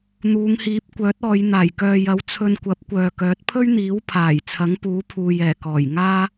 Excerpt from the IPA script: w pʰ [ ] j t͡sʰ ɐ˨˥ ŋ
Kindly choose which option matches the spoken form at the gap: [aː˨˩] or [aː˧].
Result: aː˨˩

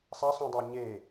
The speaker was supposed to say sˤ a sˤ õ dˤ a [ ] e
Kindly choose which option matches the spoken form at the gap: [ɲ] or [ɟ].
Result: ɲ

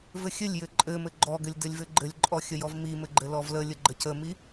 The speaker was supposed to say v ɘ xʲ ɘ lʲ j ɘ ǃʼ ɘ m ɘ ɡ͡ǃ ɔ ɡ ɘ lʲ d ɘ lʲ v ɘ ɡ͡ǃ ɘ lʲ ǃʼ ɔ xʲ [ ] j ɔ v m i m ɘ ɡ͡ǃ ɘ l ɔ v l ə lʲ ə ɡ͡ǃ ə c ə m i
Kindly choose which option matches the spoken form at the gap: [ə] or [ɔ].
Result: ə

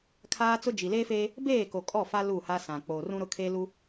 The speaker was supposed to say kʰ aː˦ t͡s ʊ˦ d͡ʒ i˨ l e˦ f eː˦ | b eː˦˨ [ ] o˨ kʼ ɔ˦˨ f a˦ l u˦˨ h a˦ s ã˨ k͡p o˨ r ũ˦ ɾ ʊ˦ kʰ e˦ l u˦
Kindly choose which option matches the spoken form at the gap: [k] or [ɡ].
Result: k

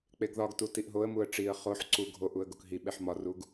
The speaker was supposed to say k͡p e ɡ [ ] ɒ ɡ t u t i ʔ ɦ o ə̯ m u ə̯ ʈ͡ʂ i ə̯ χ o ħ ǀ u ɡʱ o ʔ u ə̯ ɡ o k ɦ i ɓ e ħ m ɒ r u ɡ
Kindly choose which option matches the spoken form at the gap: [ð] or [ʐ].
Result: ð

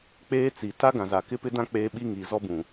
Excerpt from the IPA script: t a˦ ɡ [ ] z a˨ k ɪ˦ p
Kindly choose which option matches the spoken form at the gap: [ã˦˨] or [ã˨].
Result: ã˨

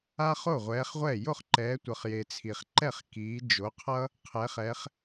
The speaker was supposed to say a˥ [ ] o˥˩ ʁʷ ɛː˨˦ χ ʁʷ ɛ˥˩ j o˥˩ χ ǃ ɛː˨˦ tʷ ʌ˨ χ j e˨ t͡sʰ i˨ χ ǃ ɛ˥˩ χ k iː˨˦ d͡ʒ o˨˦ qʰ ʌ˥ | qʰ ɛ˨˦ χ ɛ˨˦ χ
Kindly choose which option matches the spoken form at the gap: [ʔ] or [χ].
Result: χ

